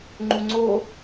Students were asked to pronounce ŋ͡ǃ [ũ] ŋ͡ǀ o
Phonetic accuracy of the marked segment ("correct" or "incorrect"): incorrect